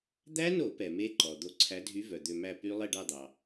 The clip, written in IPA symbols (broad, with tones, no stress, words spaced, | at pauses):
d̪æ˦˥no˧˩˧ pɛ˩me˦˥ǃɔ˩ d̪o˨˥ǀʰæ˨˥dʱy˨˥ vœ˩d̪ø˦˨ mæ˦˨ py˦˥ lˠɛ˦˨ɖɑ˦˨d̪ɑ˩